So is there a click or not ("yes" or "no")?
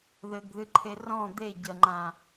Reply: yes